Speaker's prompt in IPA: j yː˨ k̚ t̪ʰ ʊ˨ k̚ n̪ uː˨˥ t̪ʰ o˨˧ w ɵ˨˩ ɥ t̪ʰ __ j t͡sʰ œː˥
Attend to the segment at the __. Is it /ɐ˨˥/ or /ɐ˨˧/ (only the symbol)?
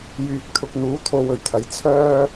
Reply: ɐ˨˥